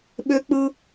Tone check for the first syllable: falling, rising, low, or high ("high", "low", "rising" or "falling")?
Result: high